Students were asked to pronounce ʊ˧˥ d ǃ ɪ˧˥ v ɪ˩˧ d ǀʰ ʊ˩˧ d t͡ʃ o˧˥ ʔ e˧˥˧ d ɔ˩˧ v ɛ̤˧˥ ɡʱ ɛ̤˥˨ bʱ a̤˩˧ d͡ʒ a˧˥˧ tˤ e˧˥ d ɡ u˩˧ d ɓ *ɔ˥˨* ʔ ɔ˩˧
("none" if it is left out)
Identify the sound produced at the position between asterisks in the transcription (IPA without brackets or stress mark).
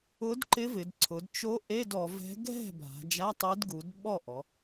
ɔ˥˨